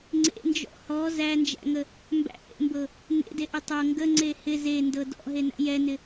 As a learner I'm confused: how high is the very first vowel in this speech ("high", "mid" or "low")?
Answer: mid